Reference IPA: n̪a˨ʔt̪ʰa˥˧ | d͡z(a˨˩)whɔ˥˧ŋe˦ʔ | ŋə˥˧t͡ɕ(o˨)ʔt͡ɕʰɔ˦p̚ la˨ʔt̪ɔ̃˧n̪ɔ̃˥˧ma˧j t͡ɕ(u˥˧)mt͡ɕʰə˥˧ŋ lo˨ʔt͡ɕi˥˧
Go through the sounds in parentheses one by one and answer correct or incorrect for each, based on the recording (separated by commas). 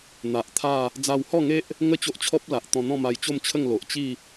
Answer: incorrect, incorrect, incorrect